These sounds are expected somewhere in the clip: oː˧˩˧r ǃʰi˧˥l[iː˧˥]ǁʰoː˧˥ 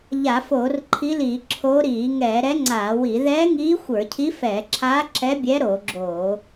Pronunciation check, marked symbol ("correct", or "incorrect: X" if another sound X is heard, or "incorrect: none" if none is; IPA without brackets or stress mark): incorrect: iː˧˩˧